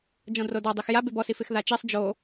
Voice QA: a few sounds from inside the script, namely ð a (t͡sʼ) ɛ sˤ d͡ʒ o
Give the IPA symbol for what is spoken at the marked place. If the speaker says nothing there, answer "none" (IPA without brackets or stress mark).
t͡ʃ